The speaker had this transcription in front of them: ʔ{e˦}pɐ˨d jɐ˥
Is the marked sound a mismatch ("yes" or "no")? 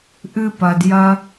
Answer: yes